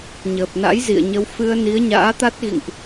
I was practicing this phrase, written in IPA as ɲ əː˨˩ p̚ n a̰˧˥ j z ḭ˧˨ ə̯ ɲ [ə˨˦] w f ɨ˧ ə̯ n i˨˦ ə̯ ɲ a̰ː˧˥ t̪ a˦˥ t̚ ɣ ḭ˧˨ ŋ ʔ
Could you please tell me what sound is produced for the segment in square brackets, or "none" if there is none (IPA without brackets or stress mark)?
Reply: ə˨˦